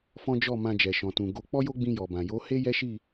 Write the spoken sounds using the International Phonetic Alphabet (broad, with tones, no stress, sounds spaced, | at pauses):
f ɔ̃˦ d͡ʒ ɔ˦˨ m ã˧ d͡ʒ ɛ˨ ʃ ɔ̃˨ t ũ˨ ɡ o˧ k͡p ɔ˦ j o˦ ɡ͡b ĩ˧ j ɔ˨ b ã˨ j o˨˦ h e˦ j ɛ˦ ʃ i˦˨